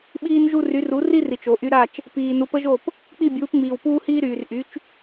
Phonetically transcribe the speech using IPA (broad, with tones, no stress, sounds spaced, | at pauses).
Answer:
ɓ iː˧ n ʒ u˧ r y˩˥ r u˩˥ r i˥ r i˩ t͡ʃ o˩ ʔ y˧ ɾ a˥˩ t͡ʃ | p iː˩ n u˩˥ p ə˥ ʒ o˥˩ p | k͡p i˥˩ bʲ uː˩˥ p ŋ͡m iː˩ w p uː˥ h iː˥ ɾ yː˩ r ʔ y˩˥ t͡ʃ